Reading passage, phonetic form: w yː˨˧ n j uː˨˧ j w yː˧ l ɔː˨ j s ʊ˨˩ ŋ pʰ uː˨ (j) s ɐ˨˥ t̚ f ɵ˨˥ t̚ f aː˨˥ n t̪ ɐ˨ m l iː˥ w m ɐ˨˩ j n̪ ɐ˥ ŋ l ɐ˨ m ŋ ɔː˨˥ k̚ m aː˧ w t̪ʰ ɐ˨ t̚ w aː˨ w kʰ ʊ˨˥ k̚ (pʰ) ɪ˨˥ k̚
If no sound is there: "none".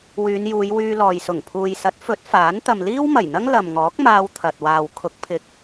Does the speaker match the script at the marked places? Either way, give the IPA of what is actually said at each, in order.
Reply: j, pʰ

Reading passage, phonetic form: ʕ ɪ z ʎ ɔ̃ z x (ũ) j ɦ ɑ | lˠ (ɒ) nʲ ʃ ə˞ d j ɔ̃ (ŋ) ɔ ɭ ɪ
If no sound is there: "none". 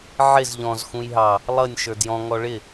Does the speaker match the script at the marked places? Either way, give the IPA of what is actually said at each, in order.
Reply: ũ, ʌ, ŋ

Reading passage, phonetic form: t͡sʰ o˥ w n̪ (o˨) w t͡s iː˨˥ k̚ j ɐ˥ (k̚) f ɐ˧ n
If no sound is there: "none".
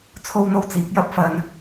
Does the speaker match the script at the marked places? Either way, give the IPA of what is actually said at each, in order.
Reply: o˥, p̚

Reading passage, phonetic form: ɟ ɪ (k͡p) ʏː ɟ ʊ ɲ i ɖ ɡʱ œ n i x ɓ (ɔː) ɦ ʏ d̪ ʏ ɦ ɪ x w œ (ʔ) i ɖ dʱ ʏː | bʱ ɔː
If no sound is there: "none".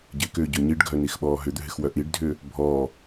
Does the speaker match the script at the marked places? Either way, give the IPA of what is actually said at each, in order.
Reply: k, ɔː, ʔ

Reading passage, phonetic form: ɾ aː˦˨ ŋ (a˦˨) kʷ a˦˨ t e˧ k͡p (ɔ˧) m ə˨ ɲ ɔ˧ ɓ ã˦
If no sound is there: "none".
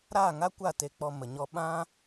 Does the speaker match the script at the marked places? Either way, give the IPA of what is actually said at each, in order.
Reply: a˦, ɔ˧

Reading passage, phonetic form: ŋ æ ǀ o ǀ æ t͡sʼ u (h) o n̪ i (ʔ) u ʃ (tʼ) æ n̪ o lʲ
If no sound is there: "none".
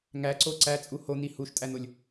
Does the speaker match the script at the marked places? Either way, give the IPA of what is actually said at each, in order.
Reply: h, h, tʼ

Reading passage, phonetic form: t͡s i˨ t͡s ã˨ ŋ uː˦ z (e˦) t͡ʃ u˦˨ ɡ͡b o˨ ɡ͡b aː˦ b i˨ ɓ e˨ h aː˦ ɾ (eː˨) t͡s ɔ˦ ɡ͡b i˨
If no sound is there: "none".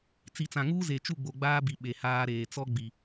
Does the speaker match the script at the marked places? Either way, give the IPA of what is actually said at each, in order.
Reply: e˨, eː˨

